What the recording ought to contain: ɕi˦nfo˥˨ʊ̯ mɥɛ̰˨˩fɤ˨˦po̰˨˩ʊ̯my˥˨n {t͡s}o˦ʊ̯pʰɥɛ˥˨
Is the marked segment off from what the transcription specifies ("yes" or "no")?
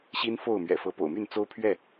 no